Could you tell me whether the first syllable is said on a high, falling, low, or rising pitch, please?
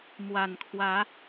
low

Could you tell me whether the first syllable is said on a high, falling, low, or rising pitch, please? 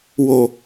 low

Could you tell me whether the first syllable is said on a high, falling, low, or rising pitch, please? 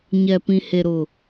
low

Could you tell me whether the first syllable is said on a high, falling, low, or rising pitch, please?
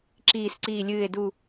low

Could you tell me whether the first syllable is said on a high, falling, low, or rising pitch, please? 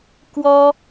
high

